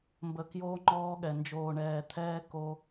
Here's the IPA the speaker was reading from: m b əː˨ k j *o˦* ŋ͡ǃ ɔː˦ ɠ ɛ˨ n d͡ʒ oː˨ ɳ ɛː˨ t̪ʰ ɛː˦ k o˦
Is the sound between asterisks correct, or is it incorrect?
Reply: incorrect